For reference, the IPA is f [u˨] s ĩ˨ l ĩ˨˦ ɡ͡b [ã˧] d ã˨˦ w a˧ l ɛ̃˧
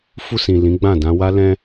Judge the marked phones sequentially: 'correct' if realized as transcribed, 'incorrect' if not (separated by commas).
incorrect, incorrect